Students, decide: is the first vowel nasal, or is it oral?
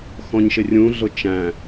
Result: nasal